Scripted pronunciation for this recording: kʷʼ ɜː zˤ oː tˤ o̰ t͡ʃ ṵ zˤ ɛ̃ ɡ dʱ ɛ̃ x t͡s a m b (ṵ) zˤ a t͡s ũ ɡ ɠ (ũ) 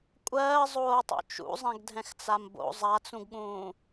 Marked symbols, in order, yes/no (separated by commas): no, no